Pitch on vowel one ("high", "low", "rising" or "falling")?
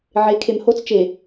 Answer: rising